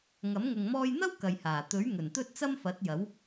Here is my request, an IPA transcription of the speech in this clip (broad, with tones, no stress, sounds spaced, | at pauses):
ŋ ɐ˨˥ m ŋ ʊ˨ ŋ m ɔː˧ j n̪ ɐ˥ w k ɐ˨ j h aː˨˩ t̪ ɵ˨˥ ɥ ŋ ɵ˨˩ n t̪ ɵ˥ t̚ t͡s ɐ˥ m f ɐ˨˥ t̚ j ɐ˨˥ w